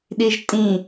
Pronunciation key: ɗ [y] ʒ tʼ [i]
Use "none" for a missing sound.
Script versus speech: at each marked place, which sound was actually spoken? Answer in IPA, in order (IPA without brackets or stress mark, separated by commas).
i, ĩ